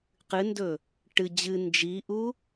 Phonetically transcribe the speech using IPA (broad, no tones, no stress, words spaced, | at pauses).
qɨndɵ | ʈɨ d͡ʑɨ nd͡ʒiʔu